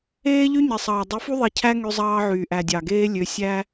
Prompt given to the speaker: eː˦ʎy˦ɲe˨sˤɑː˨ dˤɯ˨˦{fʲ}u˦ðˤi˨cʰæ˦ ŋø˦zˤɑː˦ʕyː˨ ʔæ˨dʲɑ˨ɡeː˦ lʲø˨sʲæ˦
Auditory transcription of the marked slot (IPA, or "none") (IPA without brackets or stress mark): f